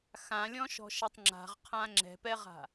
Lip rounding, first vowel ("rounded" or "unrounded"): unrounded